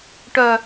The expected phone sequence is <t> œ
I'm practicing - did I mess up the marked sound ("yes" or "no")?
yes